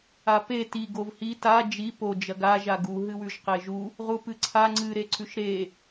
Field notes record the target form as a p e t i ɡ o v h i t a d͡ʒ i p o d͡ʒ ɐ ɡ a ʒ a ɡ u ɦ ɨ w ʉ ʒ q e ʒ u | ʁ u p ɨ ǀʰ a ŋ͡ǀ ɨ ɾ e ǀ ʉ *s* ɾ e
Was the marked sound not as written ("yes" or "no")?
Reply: yes